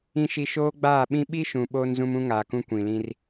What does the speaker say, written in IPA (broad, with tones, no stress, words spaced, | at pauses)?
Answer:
ĩ˨ʃi˨ ʃoː˦ɡ͡baː˦˨ ɓĩ˦ ɓi˦ʃũ˨ ɓoː˦nzũ˦m ũ˦ŋaː˨kũ˦ kʷĩ˨lĩ˦r